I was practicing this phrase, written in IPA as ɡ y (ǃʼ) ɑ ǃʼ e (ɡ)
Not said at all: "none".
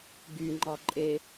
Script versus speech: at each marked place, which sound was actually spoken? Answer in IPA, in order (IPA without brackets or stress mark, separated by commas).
ŋ͡ǃ, none